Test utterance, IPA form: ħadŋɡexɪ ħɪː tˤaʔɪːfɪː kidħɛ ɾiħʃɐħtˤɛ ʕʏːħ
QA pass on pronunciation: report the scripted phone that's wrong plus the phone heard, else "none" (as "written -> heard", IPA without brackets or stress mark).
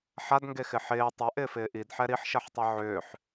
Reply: k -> ʔ